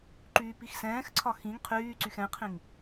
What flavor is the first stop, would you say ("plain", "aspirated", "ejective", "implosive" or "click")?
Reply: click